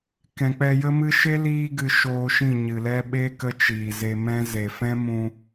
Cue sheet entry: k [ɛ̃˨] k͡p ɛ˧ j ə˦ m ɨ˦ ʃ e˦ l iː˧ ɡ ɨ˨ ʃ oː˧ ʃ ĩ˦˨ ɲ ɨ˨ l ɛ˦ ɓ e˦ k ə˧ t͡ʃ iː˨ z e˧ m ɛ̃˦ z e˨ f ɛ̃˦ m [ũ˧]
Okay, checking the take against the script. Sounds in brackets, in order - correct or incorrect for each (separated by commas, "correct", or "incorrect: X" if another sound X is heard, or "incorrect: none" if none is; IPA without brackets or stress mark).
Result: correct, correct